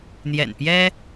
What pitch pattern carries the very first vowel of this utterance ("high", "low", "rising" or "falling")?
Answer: low